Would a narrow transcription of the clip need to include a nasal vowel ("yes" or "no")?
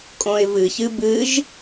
yes